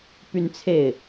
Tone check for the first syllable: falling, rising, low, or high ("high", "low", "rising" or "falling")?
high